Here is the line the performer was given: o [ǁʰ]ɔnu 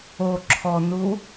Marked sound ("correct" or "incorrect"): correct